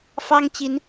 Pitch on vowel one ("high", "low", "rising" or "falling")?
high